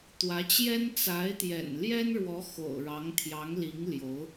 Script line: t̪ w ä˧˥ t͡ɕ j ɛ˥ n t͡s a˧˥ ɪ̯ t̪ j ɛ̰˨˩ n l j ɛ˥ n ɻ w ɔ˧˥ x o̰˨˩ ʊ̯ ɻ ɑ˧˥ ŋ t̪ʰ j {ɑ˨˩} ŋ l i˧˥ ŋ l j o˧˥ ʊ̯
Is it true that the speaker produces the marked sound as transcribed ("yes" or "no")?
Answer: no